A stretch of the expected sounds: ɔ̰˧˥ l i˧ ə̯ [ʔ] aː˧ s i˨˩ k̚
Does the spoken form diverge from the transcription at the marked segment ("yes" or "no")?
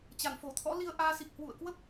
no